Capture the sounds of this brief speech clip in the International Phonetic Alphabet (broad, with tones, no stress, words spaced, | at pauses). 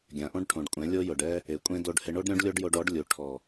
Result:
ɡʲã˨ʔõ˦ɖʈʰõ˨ɖkʷʼɛ̃˨˦ lʲo˦jʊ˨ɖɛ˦ | e˨kʷʼẽ˦ do˧ɖhɪ˧ɳo˦ɖ ɾʲõ˦ɖlʲo˦ɖjo˧ɖɔ˨˦ɖ lʲu˨ ʈʰɔ˨